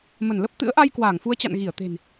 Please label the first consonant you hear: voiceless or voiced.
voiced